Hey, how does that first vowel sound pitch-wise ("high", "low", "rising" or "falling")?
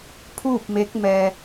falling